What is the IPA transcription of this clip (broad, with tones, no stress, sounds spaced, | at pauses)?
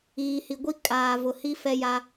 iː˨ h i˨ ɡʷ i˦ kʼ aː˨ v ʊ˨ h i˦ f ɛ˦ j a˦